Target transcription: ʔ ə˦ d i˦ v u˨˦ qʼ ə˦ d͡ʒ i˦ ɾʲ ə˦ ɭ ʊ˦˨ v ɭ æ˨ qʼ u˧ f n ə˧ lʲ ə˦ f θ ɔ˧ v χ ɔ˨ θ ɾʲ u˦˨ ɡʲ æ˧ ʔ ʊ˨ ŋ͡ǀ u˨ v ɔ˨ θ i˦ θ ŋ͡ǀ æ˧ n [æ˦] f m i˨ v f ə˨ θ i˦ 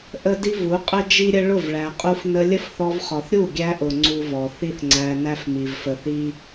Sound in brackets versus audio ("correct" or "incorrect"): correct